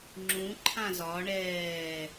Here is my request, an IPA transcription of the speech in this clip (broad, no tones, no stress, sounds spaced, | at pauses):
ŋ͡ǁ ũ ǃʰ ã z ɒ ɳ ɛː